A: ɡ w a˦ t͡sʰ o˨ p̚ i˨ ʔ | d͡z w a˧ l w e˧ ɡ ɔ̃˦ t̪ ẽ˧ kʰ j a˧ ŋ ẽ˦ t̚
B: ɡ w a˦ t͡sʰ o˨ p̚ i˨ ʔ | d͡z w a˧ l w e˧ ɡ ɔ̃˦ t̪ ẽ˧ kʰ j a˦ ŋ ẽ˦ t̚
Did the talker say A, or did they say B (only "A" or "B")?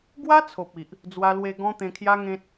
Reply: B